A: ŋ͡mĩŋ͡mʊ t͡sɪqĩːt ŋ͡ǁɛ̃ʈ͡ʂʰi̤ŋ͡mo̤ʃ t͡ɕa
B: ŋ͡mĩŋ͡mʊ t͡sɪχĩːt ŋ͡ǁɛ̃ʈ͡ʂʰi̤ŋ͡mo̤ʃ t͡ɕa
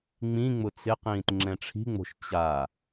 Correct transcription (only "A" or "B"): A